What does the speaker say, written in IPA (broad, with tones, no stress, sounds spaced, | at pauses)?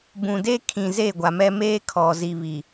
b ũ˨ d e˦ kʰ ĩ˨ z e˦˨ ɡʷ a˨ m ɛ˦ m eː˦ kʰ ɔ˨ z i˨ β i˨